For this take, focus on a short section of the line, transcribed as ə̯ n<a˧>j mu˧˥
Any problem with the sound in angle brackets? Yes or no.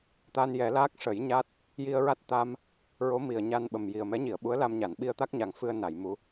yes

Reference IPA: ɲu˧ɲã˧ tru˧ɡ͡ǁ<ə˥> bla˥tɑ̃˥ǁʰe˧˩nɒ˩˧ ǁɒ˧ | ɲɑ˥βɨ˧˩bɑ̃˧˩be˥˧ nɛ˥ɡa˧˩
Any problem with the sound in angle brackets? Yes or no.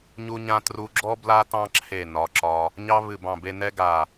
yes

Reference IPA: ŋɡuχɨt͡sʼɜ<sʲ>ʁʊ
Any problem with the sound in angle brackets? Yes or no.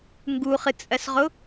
yes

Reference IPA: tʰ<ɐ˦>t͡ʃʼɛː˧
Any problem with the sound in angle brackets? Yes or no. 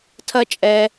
no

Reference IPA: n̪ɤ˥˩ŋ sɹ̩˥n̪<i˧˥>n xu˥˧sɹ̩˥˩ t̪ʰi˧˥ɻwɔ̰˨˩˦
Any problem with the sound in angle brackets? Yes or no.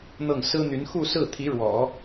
yes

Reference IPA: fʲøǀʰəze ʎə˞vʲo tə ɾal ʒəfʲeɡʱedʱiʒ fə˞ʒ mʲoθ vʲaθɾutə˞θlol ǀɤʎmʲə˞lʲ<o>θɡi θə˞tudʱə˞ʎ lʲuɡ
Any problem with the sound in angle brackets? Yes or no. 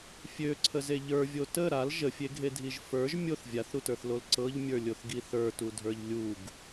no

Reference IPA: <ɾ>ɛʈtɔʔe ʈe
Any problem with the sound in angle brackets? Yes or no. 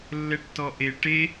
yes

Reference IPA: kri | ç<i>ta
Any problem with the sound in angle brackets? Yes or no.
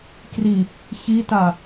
no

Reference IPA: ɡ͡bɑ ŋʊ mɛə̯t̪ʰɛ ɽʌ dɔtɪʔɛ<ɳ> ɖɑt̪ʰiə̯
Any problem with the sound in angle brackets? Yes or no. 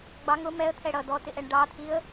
no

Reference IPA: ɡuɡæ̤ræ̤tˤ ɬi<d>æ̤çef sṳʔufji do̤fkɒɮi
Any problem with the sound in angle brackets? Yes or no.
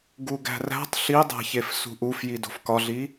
yes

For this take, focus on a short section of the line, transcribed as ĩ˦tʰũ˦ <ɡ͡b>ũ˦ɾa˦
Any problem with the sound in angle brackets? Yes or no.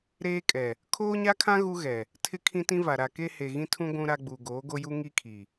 yes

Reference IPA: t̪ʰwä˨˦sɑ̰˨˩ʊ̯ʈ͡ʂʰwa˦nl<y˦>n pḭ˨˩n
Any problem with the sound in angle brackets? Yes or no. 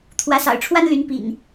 yes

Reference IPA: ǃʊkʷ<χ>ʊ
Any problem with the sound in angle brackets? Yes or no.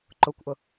yes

